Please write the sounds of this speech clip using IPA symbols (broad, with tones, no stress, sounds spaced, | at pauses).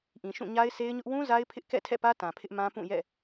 ʔ ĩ˨ ʃ ũ˦˨ ɲ a˦ ɪ̯ s e˦ ɪ̯ ɲ ʊ˦ ʔ w ũ˦ z a˦ ɪ̯ pʰ ɪ˦ ʔ k ɛ̰˦˨ tʰ ɛ̰˦˨ p ä˦ t ã˨ pʰ ɪ˦ ʔ m ã˦ p ũ˦˨ j ɛ̰˦˨